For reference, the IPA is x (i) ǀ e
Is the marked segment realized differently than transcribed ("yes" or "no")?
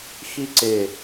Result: no